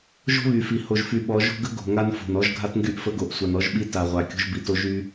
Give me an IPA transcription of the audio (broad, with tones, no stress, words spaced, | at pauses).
ʒo̤˦βy˨fi˨ ho˨ʒfy˨ɓɔ˨˦ ʒo̤˦ɡə˦ ɡo̤˨ŋa˦nfo̤˨nɔ˦ʒ ɡʱa˦tŋɡy˦ʔ fə˦ɡo˨ʔ sʷa˨nɔ˦ʒɓi˦ ta˨ʁʷa˨ kʲo̤˦ʒbi˨to˦ ʒy˦